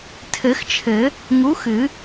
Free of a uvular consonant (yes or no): yes